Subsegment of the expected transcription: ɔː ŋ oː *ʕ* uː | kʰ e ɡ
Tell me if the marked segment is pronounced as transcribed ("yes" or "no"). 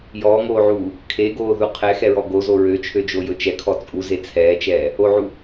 yes